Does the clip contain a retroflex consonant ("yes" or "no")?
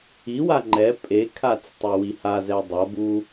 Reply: no